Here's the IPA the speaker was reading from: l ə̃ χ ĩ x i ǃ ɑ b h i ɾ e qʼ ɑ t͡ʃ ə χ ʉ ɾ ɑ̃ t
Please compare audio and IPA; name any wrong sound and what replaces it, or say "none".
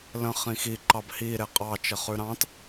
none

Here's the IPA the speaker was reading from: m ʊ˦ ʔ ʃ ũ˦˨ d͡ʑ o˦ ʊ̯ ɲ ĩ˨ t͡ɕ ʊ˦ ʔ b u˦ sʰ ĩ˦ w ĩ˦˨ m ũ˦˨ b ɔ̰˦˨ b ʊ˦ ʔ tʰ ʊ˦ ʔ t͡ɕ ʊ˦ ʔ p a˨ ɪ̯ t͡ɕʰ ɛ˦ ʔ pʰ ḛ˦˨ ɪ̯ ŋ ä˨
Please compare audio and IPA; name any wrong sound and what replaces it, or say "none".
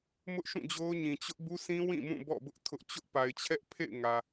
none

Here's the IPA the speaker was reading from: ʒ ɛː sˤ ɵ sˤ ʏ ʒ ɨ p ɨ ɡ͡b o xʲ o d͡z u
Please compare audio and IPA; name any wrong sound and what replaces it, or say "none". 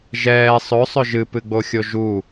d͡z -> ʒ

